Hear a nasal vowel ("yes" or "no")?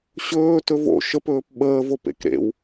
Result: no